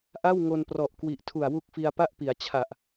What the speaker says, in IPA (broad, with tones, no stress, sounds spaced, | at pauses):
ʔ a˥˩ w ŋ o˧ n p r ɔ˨˩ ʔ k w i˨˩ ʔ tʰ u˨˩ a̯ w u˦˥ k̚ f i˧ a̯ p a˥˩ ʔ p i˩˦ a̯ t͡ɕʰ a˨˩ ʔ